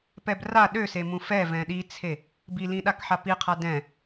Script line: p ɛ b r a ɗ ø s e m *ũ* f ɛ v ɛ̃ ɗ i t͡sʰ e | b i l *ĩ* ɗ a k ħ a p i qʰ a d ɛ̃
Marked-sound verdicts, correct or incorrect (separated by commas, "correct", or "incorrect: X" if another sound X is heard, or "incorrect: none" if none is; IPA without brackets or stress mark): correct, correct